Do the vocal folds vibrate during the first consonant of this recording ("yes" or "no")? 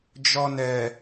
yes